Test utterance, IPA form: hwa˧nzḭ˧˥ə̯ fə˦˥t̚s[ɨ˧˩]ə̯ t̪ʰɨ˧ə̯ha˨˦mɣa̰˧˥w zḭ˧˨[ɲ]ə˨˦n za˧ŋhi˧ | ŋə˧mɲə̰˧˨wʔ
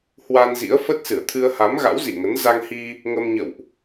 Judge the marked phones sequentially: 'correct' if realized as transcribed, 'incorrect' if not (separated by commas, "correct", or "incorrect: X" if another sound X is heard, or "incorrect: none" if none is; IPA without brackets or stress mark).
correct, incorrect: ŋ